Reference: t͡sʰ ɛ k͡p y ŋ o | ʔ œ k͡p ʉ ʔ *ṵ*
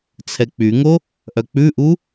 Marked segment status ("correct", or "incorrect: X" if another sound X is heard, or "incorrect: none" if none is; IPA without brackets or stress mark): incorrect: u